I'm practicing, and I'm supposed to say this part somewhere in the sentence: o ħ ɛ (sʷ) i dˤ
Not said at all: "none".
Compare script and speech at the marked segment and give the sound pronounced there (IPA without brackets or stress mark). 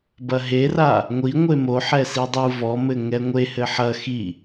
s